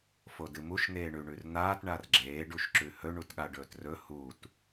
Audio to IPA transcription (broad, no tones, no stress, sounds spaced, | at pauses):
f o d ɨ m u ʃ n̪ eː ɳ ʉ ɳ ʉ r n̪ aː t ɳ a r ɡ͡ǁ eː ɖ u ʃ ǁ ʉ h ɵ ɳ u t ɠ a ɖ ɵː t r ɵ h u t